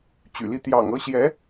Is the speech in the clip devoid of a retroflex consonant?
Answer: yes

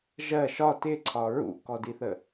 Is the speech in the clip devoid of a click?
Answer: no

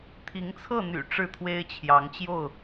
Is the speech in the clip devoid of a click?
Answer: yes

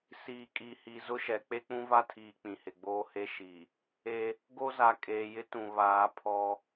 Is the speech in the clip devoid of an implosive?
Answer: yes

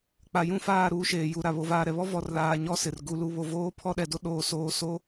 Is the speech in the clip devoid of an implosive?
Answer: no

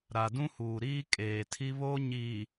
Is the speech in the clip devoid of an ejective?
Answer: no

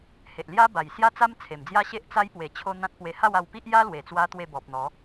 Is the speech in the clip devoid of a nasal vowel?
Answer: no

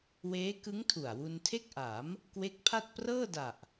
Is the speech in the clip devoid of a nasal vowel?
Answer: yes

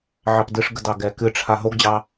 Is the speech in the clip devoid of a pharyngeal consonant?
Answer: no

